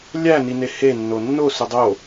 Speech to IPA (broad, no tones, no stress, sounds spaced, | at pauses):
lʲ æ n i n e h e nː o nː o s u dˤ o